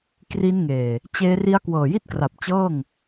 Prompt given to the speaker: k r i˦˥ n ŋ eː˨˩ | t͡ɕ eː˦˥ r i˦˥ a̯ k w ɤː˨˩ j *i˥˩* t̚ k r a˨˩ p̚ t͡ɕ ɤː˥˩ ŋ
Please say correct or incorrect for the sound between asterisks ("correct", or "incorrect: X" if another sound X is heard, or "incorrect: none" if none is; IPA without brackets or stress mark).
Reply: correct